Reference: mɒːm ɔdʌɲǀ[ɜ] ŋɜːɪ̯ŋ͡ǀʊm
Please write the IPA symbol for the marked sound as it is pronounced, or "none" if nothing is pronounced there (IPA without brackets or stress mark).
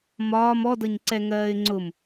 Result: ɛ